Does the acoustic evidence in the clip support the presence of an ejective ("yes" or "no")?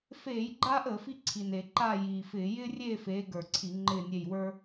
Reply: no